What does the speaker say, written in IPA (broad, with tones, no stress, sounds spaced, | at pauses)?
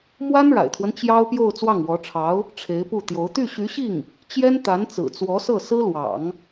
m w a˥ n ɻ a̰˨˩ ɪ̯ t̪ʰ w ə˦ n t͡ɕ j ɑ˥ ʊ̯ p j o˥˧ ʊ̯ t͡s w ɑ˥˩ ŋ w ɔ˧˥ ʈ͡ʂʰ ɑ˧˥ ʊ̯ | ʈ͡ʂʰ e˧˥ ɪ̯ p u˥˩ t̪ j o˧˥ ʊ̯ t̪ y˥˩ ɕ y˧˥ ɕ i˥˩ ŋ | t͡ɕ j ɛ˥ n t̪ a˧˥ n t͡s ɹ̩˨˩ t͡s w ɔ˧˥ s ɤ˥˩ s ɹ̩˥ l w ɑ̰˨˩˦ ŋ